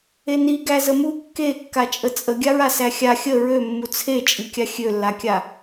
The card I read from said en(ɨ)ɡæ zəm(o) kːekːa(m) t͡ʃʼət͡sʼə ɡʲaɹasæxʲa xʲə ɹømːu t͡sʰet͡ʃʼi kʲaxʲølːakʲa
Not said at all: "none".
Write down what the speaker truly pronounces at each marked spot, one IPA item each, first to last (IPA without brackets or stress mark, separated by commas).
i, u, none